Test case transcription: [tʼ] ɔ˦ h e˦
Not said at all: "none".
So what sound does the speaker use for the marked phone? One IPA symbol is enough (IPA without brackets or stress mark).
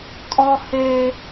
tʼ